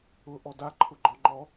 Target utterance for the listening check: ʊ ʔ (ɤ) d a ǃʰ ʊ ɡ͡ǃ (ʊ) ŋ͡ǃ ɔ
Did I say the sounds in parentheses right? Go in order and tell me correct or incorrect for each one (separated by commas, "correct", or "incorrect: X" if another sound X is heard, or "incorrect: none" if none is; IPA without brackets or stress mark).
incorrect: ɔ, incorrect: ɔ